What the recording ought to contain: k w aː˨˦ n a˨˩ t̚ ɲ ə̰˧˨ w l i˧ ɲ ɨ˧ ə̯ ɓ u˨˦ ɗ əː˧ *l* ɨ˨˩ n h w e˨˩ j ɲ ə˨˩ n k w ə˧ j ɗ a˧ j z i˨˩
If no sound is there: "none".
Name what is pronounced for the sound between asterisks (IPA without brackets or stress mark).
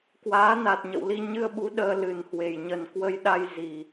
l